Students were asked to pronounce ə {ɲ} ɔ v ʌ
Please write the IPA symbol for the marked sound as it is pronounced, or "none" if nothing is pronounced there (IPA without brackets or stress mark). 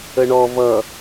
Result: ɳ